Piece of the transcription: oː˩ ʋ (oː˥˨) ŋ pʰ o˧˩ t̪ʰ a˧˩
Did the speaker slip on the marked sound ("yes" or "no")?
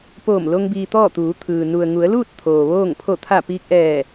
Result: no